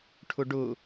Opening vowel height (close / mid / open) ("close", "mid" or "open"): close